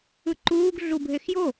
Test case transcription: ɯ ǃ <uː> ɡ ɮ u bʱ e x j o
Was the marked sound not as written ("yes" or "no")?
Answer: no